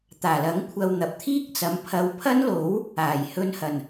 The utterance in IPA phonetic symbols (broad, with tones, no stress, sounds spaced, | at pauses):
t̪ aː˨˩ l ɐ˨˥ ŋ kʷʰ ɐ˧ w n̪ ɐ˨ p̚ t̪ʰ iː˥ k̚ t͡s ɐ˨˥ m pʰ ɐ˧ w pʰ ɐ˥ n l o˨˥ w | aː˨˩ j h ɵ˧ n h ɐ˨˩ n